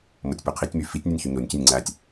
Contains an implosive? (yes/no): no